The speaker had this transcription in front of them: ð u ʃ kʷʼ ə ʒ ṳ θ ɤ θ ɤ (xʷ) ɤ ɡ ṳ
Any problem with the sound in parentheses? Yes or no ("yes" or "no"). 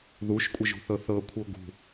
yes